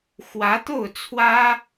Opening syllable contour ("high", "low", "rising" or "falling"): rising